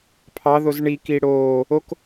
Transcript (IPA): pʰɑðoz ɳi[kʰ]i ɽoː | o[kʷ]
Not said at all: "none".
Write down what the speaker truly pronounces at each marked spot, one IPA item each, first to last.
k, k

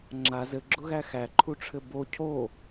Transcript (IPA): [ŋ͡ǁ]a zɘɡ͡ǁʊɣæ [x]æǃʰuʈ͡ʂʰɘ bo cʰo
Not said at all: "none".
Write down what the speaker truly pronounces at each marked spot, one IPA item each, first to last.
ŋ͡ǁ, x

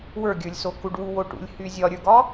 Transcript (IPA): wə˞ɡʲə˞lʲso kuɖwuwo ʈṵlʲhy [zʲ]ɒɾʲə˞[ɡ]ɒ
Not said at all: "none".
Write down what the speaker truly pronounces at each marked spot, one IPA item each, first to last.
zʲ, ɡ

